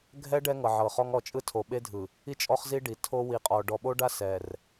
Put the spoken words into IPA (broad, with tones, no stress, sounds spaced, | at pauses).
ɡʱ ɛ˦ ɖ ɛ˦ ŋ ɤ˨ ʕ ɤ˨ χ ɔ˦ ŋ ɔ˨ t͡ʃʼ ɯ˦ tʰ o˨ ɓ e˦ dʱ ɯ˨ | i˦˨ t͡ʃʼ ɔ˦ χ z i˦ ɖ i˨ tʰ o˦ w i˨ qʼ ɔ˨ ɖ ɔ˨ ɓ o˦ ɖ a˦ s ɛ˨ r